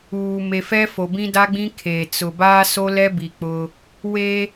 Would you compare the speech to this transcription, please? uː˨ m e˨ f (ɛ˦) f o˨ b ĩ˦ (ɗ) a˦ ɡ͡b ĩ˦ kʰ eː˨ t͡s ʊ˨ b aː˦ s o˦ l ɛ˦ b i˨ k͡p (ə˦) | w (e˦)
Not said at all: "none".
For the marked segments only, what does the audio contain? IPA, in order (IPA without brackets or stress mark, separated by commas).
ɛ˦, d, ʊ˦, e˦